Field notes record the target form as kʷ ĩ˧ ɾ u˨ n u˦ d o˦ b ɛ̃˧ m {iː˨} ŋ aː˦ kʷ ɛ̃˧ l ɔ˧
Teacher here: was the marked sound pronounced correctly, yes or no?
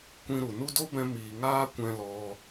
yes